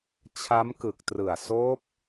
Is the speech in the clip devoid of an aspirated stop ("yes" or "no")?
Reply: no